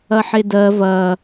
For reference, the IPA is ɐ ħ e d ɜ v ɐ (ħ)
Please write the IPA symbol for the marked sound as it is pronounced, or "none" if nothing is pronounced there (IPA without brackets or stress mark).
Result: none